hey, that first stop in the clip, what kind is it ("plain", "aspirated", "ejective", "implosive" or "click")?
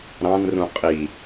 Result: ejective